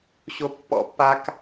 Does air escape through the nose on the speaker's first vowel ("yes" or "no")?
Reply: no